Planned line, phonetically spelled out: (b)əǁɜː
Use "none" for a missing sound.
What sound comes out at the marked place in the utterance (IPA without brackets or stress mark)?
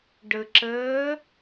ɖ